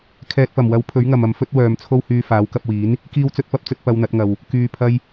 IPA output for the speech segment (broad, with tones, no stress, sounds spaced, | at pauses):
kʰ ɛː˨ t̚ p ɐ˨˩ m w ɐ˨˥ w pʰ ɵ˨˥ ɥ ŋ ɐ˨ m ɐ˨ m f ɵ˥ t̚ w œː˨ m t͡sʰ o˥ w h yː˧ f aː˨˥ w k ɐ˧ p̚ w iː˨˥ n | k iː˥ w t͡s ɵ˥ t̚ p ɐ˥ p̚ t͡s ɵ˥ t̚ p ɐ˧ w n̪ ɐ˨˥ t̚ ŋ ɐ˨ w | k yː˨ pʰ ɐ˧ j